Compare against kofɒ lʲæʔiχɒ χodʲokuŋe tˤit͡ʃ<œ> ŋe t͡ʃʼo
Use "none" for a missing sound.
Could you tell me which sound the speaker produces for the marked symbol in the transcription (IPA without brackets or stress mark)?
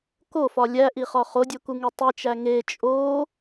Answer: æ